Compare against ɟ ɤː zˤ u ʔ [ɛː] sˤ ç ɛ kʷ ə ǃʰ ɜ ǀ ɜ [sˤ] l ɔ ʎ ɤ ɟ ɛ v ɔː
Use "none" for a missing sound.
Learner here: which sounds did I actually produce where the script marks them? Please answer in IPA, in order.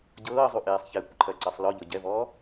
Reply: eː, sˤ

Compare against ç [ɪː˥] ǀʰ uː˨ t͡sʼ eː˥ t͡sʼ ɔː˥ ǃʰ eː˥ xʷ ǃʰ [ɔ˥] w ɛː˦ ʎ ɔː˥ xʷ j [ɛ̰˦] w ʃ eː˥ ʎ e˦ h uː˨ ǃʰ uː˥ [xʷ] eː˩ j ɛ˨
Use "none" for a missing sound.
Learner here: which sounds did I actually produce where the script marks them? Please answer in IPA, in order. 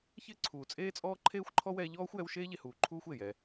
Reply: ɪː˥, ɔ˥, ɛ˦, xʷ

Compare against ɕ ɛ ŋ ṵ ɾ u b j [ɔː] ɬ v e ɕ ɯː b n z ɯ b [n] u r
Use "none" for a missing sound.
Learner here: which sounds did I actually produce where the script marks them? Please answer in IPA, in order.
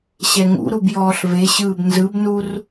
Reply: ɔː, n

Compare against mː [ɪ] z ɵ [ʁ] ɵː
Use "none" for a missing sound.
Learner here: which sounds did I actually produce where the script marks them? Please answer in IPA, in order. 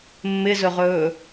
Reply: ɪ, ʁ

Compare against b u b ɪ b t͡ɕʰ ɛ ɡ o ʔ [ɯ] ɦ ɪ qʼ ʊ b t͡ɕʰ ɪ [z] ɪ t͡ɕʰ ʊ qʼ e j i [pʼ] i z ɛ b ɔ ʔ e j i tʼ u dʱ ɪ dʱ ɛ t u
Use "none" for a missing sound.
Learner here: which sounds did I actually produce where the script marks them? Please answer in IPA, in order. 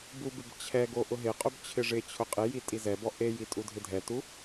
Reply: ʊ, ʐ, tʼ

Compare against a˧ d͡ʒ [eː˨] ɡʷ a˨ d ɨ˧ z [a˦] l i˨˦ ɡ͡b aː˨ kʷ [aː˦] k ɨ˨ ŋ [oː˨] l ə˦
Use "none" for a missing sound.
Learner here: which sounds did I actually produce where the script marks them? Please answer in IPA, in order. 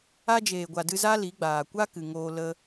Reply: eː˨, a˦, a˦, oː˧

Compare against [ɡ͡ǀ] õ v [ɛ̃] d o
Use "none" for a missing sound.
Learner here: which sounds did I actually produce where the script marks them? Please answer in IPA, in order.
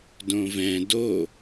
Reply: d, ɛ̃

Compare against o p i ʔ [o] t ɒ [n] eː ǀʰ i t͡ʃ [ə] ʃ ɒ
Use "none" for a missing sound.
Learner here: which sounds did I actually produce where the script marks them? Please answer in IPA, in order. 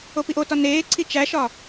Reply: o, n, æ

